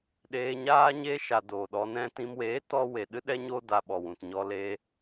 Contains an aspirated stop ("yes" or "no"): no